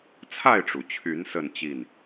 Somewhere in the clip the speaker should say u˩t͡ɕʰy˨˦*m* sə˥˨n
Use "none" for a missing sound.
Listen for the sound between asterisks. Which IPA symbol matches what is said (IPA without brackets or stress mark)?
n